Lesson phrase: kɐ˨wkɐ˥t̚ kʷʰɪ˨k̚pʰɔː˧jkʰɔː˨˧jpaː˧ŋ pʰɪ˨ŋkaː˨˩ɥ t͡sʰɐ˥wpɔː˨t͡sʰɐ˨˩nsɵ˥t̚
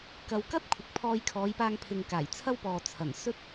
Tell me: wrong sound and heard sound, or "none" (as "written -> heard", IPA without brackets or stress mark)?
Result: ɥ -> j